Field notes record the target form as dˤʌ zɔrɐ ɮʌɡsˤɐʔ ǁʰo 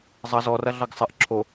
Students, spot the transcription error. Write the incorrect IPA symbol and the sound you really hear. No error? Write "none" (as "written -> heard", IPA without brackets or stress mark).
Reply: dˤ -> zˤ